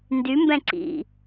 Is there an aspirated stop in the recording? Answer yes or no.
no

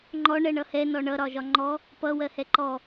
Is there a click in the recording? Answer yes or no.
yes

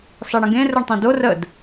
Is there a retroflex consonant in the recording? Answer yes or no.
yes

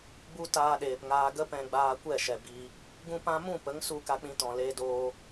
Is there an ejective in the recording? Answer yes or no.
no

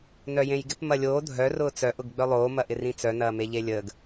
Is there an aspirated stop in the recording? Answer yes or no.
no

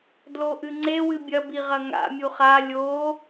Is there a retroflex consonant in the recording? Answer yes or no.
no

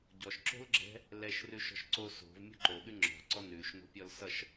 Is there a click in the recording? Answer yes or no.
yes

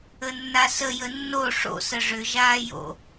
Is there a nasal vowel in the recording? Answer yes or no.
no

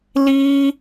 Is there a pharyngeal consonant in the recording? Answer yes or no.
no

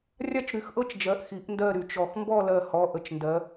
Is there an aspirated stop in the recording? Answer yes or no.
no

